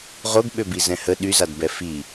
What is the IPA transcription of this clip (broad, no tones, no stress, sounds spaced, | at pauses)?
ʁ o ɡ ɓ ø b i z ɛ̃ h ə ɗ y z a d b ɛ f i